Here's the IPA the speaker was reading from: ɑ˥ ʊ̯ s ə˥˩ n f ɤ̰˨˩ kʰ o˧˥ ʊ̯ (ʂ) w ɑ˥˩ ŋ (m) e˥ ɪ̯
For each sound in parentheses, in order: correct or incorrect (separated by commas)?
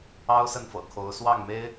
incorrect, correct